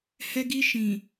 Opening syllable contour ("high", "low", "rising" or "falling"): high